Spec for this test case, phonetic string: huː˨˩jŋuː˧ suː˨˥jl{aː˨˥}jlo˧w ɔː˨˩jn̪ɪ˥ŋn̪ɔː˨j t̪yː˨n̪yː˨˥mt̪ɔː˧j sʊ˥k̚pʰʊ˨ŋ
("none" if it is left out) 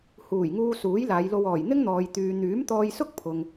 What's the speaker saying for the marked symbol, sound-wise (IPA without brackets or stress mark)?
aː˨˧